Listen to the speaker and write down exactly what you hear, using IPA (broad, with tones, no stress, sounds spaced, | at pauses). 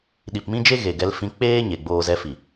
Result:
ɗ i˨ p m ĩ˦ d͡ʒ e˦ ɣ e˨ ɡ ɛ˧ l f ĩ˧ k͡p eː˦ ɲ e˧ ɡ͡b oː˦ z ɛ˧ f i˨